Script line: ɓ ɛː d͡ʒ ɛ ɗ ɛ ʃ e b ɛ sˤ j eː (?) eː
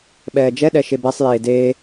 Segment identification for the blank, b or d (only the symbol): d